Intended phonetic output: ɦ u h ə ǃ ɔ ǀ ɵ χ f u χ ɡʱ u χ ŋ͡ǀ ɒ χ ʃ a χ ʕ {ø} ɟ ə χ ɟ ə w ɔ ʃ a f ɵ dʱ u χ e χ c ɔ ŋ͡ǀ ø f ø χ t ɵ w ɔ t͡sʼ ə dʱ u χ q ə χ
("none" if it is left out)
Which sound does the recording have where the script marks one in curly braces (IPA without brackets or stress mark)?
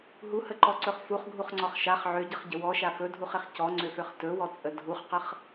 ø